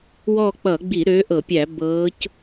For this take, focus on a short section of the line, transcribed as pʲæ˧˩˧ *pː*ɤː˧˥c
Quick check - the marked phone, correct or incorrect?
incorrect